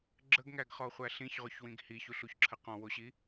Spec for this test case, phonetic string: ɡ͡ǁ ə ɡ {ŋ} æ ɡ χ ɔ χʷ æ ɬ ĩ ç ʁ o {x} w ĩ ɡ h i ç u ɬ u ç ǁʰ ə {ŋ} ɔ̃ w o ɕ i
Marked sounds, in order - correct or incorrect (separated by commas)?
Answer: correct, incorrect, incorrect